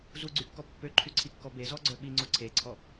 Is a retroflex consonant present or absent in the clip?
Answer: absent